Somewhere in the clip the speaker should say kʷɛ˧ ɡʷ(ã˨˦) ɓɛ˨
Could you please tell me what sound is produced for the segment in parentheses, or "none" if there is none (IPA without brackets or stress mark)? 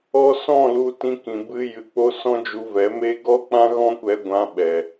ã˧